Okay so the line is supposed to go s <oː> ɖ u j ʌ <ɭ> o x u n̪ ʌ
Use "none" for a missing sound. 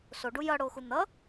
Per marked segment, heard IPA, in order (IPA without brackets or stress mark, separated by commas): o, ɽ